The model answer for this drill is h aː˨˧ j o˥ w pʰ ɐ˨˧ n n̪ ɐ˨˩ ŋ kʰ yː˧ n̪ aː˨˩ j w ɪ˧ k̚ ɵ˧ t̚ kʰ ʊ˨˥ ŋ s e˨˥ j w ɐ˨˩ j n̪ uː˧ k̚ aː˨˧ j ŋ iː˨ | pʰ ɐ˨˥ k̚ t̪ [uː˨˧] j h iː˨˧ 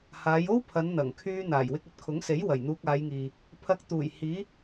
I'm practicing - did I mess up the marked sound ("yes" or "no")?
yes